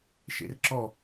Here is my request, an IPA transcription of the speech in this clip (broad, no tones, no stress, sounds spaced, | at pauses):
ʃ ḛ r ǁ ɔ